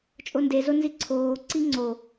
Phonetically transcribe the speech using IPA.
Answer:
t͡ʃʼondezo nziǀʰoːǀi ŋ͡ǀo

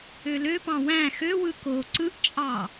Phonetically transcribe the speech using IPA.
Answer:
øløpɑ̃ wæ̃ xøwɯ ko ǀɯʔt͡ʃʼɑ

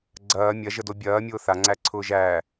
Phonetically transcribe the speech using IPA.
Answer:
ɡ͡ǀɐː mʲɐʒədo bʲɐː mʲʊːθaŋ͡ǀæ ǀʰʊːʒæː

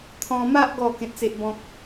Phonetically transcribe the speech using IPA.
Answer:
t̪ʰɔ̃˧ma˦ʔ ɡɔ˥˧ kẽ˦t̚t͡se˦ʔbɔ̃˦k̚

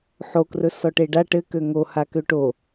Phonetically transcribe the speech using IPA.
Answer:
ħokrɵ sɔʈeɖa ʈɘkø ŋo hakøʈo

